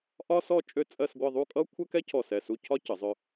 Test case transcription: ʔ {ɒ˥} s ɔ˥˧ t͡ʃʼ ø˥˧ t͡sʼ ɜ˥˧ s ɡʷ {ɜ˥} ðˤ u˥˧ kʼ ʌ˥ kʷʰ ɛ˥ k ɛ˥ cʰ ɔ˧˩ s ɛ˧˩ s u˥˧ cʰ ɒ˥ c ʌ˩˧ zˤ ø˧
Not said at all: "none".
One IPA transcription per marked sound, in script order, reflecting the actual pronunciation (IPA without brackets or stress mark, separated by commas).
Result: ɒ˥, ɜ˥˧